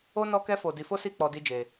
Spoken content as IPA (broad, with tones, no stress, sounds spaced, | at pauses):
o˦ n ɔ˦ k ɛ˦ f o˧ d i˧ f o˦ s i˦˨ k͡p ɔ˧ d i˦ d͡ʒ e˧